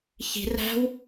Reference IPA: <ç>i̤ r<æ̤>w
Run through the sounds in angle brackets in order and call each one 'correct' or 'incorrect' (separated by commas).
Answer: correct, correct